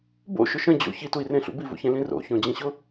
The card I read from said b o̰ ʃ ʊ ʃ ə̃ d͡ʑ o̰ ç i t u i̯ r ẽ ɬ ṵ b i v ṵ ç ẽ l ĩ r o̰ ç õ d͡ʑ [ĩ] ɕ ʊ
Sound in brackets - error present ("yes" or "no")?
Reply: no